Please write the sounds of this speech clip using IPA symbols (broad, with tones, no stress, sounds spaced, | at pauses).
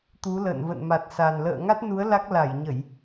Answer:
t̪ u˨˦ l ə̰ː˧˨ n v ə̰˧˨ n m a˨˩ t̚ s a˨˩ n l ə̰ː˧˨ ŋ a˦˥ t̚ n u˨˦ ə̯ l a˦˥ k̚ l a˧˩ j ɲ ə˧˩˨ j